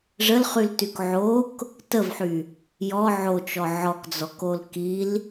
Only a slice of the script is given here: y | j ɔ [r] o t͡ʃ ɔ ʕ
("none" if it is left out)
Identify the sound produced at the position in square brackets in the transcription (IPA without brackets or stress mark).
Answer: ʕ